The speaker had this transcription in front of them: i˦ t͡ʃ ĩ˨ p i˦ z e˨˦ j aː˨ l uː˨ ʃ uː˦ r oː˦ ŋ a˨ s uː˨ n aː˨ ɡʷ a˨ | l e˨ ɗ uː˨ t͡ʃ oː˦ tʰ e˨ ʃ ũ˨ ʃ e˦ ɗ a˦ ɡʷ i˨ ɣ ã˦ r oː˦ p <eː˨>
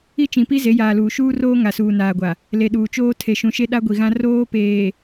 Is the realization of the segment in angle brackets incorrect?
no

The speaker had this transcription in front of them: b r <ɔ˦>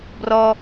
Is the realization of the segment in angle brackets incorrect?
no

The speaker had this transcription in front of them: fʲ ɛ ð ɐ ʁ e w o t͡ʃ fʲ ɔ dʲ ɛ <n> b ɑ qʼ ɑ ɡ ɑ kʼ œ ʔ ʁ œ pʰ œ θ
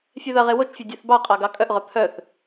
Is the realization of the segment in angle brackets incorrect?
yes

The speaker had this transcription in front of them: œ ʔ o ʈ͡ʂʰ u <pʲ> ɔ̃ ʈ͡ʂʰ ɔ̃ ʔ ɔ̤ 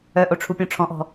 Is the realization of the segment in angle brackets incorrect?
no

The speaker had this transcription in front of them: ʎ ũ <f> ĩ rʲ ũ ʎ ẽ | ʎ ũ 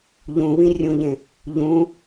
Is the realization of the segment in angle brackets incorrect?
yes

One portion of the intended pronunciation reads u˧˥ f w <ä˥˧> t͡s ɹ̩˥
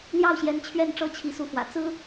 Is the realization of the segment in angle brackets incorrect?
yes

